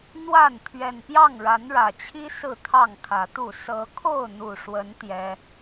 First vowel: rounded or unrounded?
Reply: unrounded